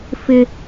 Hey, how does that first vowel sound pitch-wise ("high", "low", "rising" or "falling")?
high